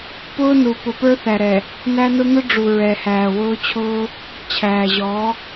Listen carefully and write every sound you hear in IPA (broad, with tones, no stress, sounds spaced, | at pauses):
p ʊː˦ n u˨ p ʊ˨ p ə˞˦ θ æ˨ ɾ ɛ˨ | n æ˦ n ʊ˦ n̪ ʊ˦ ɖ͡ʐ u˨ ɹ ɛ˨ h æː˨ w ʊː˦ t͡ɕʰ ʊː˦ | t͡ɕʰ æː˨ ʑ ɔ˨˦